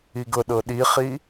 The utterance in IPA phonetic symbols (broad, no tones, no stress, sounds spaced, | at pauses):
i ɡ ɤ ɗ ɤ ɗ i χ i